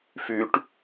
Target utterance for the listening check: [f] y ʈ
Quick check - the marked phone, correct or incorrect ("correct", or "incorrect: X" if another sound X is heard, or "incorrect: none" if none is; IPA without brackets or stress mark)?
correct